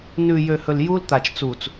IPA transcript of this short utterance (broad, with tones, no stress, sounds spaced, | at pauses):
n ʉ˨ j ø˨ h ɵ˨ l j u˦ l t̪ a˨ t͡ʃ t͡s uː˨ t͡s